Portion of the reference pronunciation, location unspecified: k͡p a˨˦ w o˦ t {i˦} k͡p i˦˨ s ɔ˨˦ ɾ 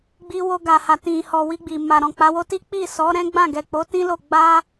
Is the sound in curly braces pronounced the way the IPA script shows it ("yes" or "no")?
yes